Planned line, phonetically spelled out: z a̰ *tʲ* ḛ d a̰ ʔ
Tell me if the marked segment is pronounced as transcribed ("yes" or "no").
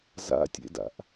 yes